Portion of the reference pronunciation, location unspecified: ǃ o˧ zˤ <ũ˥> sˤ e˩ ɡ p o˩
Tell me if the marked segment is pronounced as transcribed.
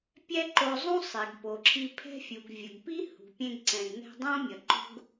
yes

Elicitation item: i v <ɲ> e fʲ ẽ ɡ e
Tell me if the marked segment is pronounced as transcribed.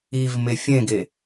no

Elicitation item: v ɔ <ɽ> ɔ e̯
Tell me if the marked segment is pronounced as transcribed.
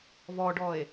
no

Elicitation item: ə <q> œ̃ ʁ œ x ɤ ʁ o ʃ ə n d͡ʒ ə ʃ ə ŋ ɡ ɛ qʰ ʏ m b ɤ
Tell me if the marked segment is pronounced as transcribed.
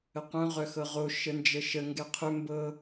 yes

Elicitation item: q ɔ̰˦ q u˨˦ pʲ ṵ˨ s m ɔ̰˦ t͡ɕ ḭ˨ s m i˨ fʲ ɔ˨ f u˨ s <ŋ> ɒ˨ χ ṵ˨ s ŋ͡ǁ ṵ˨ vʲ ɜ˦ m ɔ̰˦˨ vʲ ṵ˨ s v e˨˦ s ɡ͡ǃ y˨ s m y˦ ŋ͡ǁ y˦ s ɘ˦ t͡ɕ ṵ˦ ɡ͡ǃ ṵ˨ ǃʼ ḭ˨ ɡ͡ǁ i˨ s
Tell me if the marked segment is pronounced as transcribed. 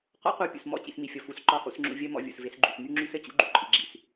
no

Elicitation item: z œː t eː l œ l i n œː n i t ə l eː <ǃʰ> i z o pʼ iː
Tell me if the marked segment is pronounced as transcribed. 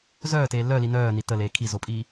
no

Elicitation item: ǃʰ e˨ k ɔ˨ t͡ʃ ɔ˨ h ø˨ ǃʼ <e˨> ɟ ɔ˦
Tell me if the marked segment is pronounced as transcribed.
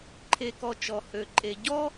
yes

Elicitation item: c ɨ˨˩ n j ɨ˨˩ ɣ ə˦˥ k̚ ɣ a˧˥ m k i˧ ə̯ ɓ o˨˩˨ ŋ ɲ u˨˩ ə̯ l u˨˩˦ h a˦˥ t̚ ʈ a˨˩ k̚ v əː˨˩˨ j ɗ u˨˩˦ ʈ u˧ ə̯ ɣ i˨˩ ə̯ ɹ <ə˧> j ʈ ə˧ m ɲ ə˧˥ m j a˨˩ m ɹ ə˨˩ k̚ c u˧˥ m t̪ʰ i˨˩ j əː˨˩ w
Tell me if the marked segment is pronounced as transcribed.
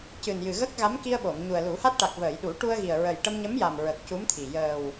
no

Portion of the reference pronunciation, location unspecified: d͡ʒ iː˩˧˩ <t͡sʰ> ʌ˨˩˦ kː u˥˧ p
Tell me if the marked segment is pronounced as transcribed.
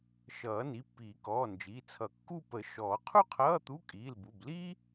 yes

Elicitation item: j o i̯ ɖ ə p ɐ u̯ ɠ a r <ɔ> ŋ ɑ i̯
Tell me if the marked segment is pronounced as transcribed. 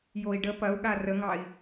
no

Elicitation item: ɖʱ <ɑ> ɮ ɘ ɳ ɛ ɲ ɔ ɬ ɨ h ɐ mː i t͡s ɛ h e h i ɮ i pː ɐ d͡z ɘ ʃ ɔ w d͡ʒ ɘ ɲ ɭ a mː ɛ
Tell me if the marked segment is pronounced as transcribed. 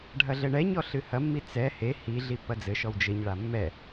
no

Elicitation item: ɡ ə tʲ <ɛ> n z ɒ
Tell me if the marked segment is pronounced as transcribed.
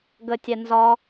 yes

